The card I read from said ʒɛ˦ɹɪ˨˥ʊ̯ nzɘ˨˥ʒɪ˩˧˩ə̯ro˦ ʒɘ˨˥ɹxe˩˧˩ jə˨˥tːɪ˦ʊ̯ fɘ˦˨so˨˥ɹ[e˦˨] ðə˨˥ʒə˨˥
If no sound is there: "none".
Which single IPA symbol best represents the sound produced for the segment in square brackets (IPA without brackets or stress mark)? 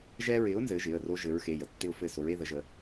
e˦